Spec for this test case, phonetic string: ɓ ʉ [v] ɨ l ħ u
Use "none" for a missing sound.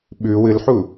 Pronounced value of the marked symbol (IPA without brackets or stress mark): w